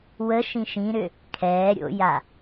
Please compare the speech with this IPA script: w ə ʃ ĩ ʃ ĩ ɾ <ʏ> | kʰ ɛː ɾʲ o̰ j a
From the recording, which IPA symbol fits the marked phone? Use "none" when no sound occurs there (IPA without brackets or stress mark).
ʏ